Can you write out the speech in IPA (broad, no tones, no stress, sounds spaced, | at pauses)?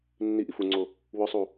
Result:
nː i ʔ i f u ŋ͡ǀ o | w ɵ sˤ u